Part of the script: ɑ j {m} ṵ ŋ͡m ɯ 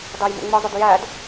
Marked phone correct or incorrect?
correct